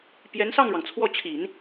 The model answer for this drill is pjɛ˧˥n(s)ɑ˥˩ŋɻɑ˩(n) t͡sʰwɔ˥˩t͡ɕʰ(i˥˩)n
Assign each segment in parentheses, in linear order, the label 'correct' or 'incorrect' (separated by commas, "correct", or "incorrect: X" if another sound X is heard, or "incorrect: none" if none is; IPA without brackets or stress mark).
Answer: correct, incorrect: ŋ, incorrect: i˨˩˦